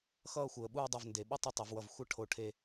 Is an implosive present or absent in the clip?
present